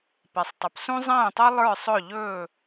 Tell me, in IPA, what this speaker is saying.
p ɛ˩ sˤ tˤ ɵ˩ p s ũ˥ zˤ ɛ̃ː˥˩ tˤ ɤ˥ lˠ ə˞˥˩ sˤ ɵ˥˩ ʎ ɵː˥˩

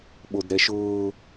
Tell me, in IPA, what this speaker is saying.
ɓ o d ɾ ɛ ʃ ʊː

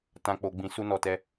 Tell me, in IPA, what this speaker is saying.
t ã˨ k͡p o˨ ɡ͡b ĩ˨ s u˧ n ɔ˨ t ɛ˧

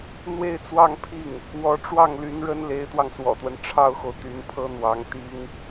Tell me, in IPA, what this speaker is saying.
n̪ w e˥˧ ɪ̯ t͡s w ɑ˥˧ ŋ pʰ i˥˩ ŋ | w ɔ˧˥ ʈ͡ʂ w ɑ˥˩ ŋ l y˧˥ n ɻ ə˥ n l e˧˥ ɪ̯ t̪ w ɑ˧ ŋ s w ɔ̰˨˩ t̪ w ə˦ n ʈ͡ʂʰ ɑ˥ ʊ̯ x o˨ ʊ̯ t̪ y˧˥ n pʰ ɤ˥ n̪ w ɑ˧˥ ŋ t̪ i˥ ŋ

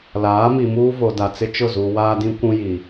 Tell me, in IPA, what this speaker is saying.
l aː˨˦ m i˨ m uː˦ v o˨ d a˨ t͡s ɪ˦ t͡ʃ ʊ˦˨ z u˨ w aː˦ d ĩ˦ kʷ ũ˦ j i˨

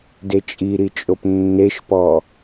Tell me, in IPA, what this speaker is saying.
d e t͡ʃʼ i ɾ i t͡ʃʼ o p nː e ʃ p ɔ

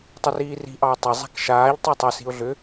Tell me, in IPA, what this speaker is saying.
tˤ ʏ r iː r i̤ ʔ ɑ ʊ̯ tˤ e zˤ a̤ k ʃ aː ʎ tˤ a tˤ ʏ s i̤ ʊ̯ ɮ ʏ

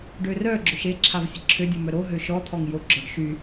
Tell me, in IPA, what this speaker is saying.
ɖ ø r œ ɡ͡ǁ ø ʃ e ǁʰ a v sʲ ə ǁʰ ø dʲ u m œ ɾ o ɦ ø ʃ ɔ t̪ʰ ɔ ŋ j o ɡ͡ǁ ɔ ɖ ʃ y

